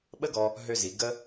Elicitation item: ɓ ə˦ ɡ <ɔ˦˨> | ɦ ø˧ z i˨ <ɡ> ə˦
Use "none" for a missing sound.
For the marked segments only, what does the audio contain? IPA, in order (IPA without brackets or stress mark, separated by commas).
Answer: ɔ˧, ɡ